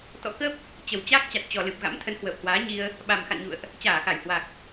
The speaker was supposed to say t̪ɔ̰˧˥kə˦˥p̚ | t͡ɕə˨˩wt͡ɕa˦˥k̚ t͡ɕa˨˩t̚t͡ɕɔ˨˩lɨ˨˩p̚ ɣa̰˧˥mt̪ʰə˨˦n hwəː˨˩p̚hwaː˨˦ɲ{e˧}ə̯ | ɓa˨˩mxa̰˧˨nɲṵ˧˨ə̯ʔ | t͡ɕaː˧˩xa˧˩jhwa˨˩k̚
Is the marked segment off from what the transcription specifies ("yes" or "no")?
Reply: yes